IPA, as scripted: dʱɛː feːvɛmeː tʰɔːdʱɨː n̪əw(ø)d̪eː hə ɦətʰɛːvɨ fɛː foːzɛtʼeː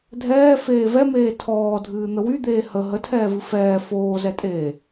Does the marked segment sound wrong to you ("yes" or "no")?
yes